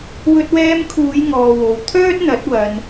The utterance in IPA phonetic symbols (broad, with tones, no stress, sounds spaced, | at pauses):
w ɵ˧ t̚ w ɛː˧ m kʰ uː˨˧ j ŋ ɔː˨ w o˨ w t̪ʰ œː˥ t̚ n̪ ɐ˨˥ t̚ w ɐ˧ n